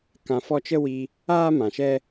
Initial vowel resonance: nasal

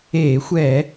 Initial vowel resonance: oral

